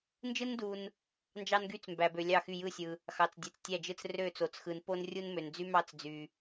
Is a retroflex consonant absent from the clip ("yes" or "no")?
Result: yes